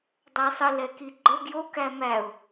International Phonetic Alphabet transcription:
dˤæsˤə lɛkiɡ͡ǃə ɡjo kæmæʊ̯

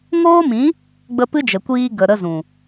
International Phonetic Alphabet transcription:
ŋoː˦mĩ˨˦ | ɡ͡bə˧pɨ˦d͡ʒə˨kʷiː˧ ɡə˨ ɾə˧zũ˨

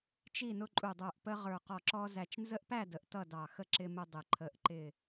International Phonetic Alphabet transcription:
t͡ʃi˥˨nʊ˦ǃʼu˧˩dˤə˞˧˩ʔ pə˦ʁə˞˧˩qɔ˧˩ǁɔ˦ zæ˧˩t͡ʃnzə˦ʔpæ˥˨ də˧˩ʔtʌ˥˨dɑ˧˩xə˥˨ ǁɪ˦mʊ˦dˤɪ˧˩ ǃʰə˧˩ʔ ǃɪ˧˩

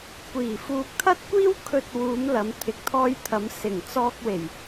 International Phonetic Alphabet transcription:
kʷiː˨˩ fuː˨k̚t̪ʰɐ˥t̚kʷiː˥w kʰɵ˧t̚wuː˨˧m lɐ˨˧mt̪ʰɪ˨˥k̚t̪ʰɔː˧jt̪ʰɐ˨˧m sɪ˨˩ŋ t͡sɔː˧k̚we˨˩j

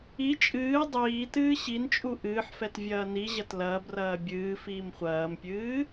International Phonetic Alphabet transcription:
i t͡ʃʼɨː dˤiːtɨː ɕint͡ʃʼu ʔɨːħfɛt vʲɐːniʑɐt lɐːbrɐː bʲɨː fiːmχʷɐːmpʲɨː

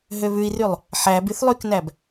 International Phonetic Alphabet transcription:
ɦøβʉi̯rylˠ | ħæb yθlˠyknæb

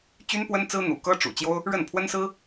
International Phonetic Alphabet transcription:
t͡ɕy˥npwə˥nt͡sɹ̩˥ n̪ṵ˨˩kɤ˥ʈ͡ʂṵ˨˩ t͡ɕjo˥ʊ̯ | ɻə˥˩npʰwə˥nsɹ̩˥

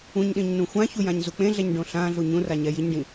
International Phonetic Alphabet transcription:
ũɲɗĩɲnũ xʷãçujãɲzu k͡pẽɮɛɲɖõ ɬãɮu ɲũraɲɛ jiɲɖĩ

